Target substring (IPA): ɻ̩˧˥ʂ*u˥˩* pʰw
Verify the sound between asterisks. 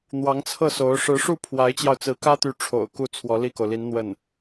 correct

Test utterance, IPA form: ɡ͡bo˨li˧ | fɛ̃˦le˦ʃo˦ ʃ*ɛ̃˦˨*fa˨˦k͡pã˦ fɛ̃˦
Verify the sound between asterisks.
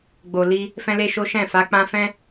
correct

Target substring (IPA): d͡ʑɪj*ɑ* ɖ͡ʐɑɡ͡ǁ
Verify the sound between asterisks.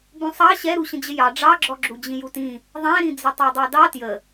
correct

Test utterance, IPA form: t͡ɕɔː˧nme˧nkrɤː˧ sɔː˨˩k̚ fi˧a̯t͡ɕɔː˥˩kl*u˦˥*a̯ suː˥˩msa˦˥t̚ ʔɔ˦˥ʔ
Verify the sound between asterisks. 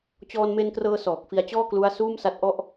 correct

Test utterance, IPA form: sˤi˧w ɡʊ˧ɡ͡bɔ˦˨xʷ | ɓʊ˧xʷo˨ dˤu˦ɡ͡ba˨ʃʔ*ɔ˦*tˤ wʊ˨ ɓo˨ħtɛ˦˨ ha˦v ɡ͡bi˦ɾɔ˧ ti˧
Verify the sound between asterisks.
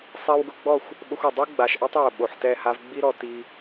correct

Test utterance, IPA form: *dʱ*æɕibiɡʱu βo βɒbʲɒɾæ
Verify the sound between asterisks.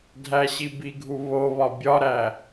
correct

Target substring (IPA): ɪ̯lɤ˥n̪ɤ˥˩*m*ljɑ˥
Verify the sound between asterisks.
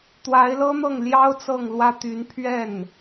incorrect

